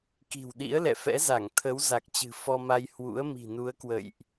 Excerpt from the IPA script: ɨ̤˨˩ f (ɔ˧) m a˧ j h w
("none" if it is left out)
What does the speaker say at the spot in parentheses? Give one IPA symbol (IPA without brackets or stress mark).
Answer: ɔ˧